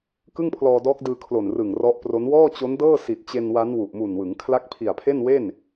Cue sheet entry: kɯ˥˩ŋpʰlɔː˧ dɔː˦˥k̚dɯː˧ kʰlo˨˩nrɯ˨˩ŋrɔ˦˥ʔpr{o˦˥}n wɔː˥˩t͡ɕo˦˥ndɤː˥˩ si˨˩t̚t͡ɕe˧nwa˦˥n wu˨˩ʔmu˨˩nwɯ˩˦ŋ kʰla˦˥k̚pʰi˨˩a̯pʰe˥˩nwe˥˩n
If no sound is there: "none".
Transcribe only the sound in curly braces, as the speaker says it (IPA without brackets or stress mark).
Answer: o˦˥